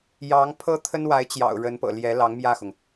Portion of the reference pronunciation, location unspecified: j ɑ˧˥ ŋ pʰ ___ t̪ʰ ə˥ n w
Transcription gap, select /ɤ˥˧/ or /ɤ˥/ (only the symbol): ɤ˥